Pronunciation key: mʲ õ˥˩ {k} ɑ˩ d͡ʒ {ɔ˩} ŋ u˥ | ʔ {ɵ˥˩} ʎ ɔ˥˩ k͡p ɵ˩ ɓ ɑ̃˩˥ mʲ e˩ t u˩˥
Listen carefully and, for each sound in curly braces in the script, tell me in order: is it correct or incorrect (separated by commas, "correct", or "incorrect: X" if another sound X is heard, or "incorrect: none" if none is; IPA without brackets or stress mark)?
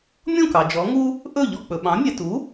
correct, incorrect: ɔ˩˥, correct